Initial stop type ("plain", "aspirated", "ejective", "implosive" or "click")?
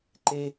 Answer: click